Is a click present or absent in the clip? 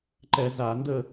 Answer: present